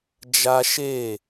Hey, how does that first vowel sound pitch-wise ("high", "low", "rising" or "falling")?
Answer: high